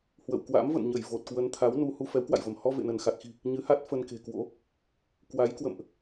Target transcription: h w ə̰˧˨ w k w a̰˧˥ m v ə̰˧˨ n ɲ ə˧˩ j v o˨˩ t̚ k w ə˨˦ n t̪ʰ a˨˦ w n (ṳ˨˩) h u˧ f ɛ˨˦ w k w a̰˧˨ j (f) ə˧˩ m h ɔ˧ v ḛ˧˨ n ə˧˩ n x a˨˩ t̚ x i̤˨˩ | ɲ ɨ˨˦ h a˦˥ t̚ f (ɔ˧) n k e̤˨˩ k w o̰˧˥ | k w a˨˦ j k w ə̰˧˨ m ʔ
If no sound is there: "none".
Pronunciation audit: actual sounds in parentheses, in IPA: u˧, v, ə˧

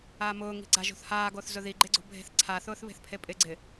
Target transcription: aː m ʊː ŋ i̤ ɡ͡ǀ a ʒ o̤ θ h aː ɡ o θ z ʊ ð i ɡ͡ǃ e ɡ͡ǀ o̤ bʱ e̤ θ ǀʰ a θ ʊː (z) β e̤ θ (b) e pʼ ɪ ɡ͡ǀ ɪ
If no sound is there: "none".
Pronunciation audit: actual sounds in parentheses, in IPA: θ, pʰ

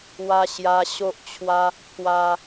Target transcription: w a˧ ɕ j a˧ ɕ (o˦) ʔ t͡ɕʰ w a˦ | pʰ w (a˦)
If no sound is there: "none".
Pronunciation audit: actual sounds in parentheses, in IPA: o˦, a˧

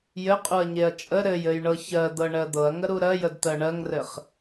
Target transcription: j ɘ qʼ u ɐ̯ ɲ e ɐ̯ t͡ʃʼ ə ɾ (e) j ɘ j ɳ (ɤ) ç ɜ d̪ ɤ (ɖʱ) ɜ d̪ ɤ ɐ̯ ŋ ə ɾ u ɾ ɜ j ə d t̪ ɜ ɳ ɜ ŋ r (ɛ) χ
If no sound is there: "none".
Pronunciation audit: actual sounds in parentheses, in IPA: ɘ, ɤ, ɳ, ɘ

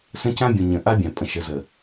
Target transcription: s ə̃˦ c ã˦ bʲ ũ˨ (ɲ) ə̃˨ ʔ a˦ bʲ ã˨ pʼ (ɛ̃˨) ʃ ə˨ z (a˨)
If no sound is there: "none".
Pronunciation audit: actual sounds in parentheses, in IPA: ɲ, ə̃˨, ə˨

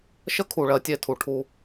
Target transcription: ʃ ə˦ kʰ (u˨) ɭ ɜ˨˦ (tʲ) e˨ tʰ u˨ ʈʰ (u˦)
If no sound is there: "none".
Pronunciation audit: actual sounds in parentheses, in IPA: u˨, tʲ, u˦

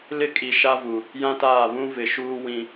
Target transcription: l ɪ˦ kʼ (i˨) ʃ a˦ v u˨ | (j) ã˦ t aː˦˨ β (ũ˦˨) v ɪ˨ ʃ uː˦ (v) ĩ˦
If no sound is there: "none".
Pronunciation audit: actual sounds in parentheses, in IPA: i˨, j, ũ˦, w

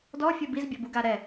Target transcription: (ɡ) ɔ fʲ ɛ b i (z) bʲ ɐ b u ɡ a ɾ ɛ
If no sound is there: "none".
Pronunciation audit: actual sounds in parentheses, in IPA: d, z

